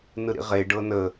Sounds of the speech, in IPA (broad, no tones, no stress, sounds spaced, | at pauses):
n ɯ ɾ ḭ ʁ e ɖ ɤ n ə